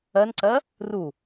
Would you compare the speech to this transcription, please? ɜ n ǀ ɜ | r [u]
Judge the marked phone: correct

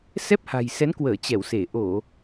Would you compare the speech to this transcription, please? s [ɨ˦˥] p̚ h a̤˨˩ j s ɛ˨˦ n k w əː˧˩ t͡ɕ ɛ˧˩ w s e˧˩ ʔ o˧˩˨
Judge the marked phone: incorrect: ɛ˦˥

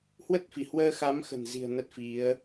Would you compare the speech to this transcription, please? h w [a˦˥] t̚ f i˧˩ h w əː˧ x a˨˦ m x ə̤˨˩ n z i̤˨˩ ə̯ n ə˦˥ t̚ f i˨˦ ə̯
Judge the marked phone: incorrect: ə˦˥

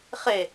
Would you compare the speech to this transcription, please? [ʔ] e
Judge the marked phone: incorrect: χ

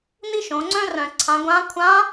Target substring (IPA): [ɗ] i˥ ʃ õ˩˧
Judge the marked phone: incorrect: n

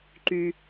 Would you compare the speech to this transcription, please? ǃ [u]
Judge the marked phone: incorrect: y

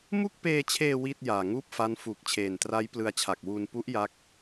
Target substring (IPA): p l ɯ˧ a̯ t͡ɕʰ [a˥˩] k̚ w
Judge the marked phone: incorrect: a˨˩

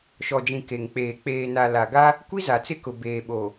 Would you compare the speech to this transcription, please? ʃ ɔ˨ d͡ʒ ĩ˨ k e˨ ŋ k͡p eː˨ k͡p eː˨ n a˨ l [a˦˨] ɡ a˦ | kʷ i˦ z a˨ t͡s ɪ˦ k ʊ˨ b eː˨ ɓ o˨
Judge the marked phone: incorrect: a˨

